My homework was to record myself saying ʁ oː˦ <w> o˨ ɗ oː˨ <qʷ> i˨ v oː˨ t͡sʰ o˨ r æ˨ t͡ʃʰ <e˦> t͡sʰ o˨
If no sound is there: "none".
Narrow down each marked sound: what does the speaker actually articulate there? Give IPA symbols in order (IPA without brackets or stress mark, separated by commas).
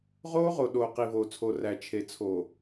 ʁ, q, e˨